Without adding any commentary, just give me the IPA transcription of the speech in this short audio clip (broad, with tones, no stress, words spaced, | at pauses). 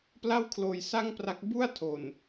pla˥˩wkʰloː˧jsa˥˩ŋpra˦˥k̚ bu˥˩a̯tʰo˨˩n